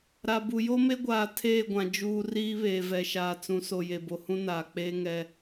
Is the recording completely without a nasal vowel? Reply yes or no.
no